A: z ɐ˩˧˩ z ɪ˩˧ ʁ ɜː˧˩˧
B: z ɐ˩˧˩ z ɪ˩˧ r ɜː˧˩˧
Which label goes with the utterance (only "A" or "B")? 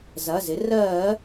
B